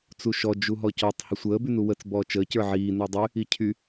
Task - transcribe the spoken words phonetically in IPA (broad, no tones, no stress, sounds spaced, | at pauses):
t͡s u ʃ ɔ d͡ʒ u ɦ ɔ c ɔ tˤ h ə sʷ əː b y n u w ə t͡s b ɔː t͡ʃ əː c ə˞ ʕ iː n ə˞ dˤ y | i cʰ y